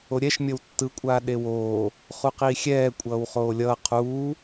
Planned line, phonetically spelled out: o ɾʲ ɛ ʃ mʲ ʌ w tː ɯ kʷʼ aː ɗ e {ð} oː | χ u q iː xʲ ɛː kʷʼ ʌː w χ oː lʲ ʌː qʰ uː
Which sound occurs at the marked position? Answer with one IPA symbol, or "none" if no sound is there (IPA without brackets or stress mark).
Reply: w